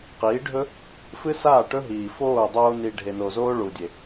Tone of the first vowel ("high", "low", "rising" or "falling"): rising